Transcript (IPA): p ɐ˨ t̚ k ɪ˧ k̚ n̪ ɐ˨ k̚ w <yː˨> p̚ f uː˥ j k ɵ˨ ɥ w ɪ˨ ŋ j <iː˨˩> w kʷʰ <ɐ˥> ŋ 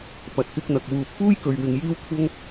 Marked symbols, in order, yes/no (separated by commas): no, no, yes